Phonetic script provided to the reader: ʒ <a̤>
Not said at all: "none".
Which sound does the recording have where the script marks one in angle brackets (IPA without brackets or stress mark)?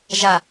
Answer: a